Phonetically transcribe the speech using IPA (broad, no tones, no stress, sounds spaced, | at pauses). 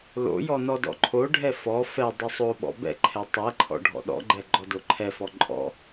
l o̰ j ɔ n ɔ d ɔ̰ ǃʰ o ɖʱ ɛ f ɔ f ɛ dˤ ɘ sˤ o ɓ ɔ̰ b ɛ̰ ǃʰ ɛ tˤ ɛ ǃʰ ɔ̰ ɖʱ ɔ̰ ɗ ɔ̰ ɡ͡ǃ ɛ ɡ͡ǃ ɔ d o ǃʰ ɛ f ɔ ǃʼ ɔ̰